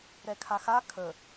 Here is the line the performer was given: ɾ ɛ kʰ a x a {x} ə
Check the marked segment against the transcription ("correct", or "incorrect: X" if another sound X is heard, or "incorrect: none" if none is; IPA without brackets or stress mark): incorrect: kʰ